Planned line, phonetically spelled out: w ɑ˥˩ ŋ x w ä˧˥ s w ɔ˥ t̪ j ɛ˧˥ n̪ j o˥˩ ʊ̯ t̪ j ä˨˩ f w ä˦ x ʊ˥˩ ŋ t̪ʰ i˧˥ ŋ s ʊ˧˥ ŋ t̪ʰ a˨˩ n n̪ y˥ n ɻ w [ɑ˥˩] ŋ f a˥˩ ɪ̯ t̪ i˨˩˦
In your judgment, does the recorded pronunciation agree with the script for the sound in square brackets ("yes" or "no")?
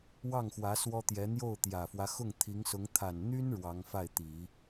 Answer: no